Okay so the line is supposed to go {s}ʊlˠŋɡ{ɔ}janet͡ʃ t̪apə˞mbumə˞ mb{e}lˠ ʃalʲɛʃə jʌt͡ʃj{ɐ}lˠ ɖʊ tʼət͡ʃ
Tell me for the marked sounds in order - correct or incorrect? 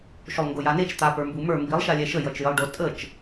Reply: incorrect, incorrect, incorrect, incorrect

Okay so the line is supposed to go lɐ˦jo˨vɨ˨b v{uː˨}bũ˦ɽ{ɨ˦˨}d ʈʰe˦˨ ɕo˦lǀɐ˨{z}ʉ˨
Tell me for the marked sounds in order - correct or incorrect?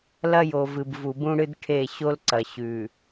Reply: incorrect, incorrect, incorrect

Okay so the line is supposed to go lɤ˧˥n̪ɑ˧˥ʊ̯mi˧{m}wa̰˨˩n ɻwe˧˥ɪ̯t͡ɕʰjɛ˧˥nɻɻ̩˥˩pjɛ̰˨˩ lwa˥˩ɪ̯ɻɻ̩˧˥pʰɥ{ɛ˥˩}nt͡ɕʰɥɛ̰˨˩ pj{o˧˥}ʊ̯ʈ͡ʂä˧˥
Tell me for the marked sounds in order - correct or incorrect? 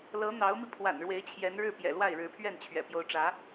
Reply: incorrect, correct, correct

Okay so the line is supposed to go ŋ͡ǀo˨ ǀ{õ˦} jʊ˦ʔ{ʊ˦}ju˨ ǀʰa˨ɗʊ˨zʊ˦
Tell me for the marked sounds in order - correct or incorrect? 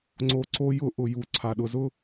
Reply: incorrect, incorrect

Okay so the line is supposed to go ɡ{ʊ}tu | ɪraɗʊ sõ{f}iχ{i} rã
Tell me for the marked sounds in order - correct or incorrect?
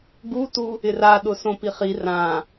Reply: incorrect, incorrect, correct

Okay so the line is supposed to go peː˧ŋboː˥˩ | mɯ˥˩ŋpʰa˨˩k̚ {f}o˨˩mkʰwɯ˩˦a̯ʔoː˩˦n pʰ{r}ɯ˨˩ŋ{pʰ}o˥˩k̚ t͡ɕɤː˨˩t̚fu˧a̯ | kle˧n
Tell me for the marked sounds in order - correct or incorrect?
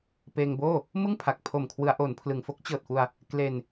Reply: incorrect, incorrect, incorrect

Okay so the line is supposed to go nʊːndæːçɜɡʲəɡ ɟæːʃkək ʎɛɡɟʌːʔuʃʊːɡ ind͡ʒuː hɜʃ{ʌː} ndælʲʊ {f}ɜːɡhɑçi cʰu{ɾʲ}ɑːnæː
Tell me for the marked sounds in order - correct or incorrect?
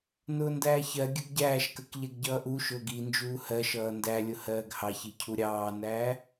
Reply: correct, incorrect, correct

